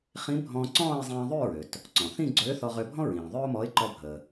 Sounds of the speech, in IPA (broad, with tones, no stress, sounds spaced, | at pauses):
χ ĩ˧˥ bʱ ɔ̃ː˧ ǀ ɔ̃ː˥˧ ɪ̯ zˤ ĩː˧ ðˤ ʉ˥˧ ɹ ø˩ t | ǀ ɔ̃˩ θ ĩ˥˧ ɡ͡ǀ øː˧˥ θ ɔ˧ ʁ ø˧ bʱ ɔ̃˥ ɹ ĩː˩ ðˤ ø˥ ʊ̯ m ɔ˧˥ ɪ̯ ǃ ɔ˧ bʱ əː˩